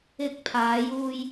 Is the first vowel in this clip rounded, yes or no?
no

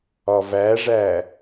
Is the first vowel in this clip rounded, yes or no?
yes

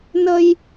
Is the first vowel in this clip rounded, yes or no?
no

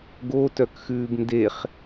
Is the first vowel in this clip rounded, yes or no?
yes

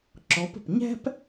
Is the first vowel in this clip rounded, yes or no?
yes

